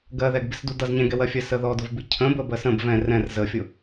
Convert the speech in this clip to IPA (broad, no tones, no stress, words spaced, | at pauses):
ɡɜðɛɡbɪsdu dʌz ɲɛ̃ɡɛwɜfʲɜ səðɔdʊvbi cʰə̃bə bɜsə̃b vɛ̃ rɛ̃r zəfʲʊ